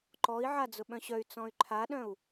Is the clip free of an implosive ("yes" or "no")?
no